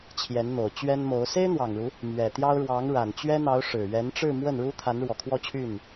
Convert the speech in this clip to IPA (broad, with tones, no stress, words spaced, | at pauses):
t͡ɕʰjɛ˧˥nn̪o˨˩ʊ̯t͡ɕɥɛ˥nmo˧˥ʊ̯ se˥ɪ̯n̪wɑ˨˩ŋɻu˦ | mɥɛ˨˩t̪jɑ˥ʊ̯ ɻwɑ˧˥ŋ ɻa˨˩nt͡ɕɥɛ˥n̪ɑ˧˥ʊ̯ ʂɻ̩˨˩ɥɛ˧˥n ʈ͡ʂɻ̩˥˧mwə˥˩n ɻu˥t̪ʰa˧˥nɻwɔ˨˩ kʰwɔ˥˧t͡ɕʰy˥˩n